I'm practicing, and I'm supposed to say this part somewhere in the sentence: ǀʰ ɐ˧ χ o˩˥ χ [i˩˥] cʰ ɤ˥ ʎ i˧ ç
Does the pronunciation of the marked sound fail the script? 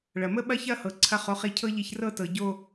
yes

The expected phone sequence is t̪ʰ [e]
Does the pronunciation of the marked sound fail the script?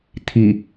yes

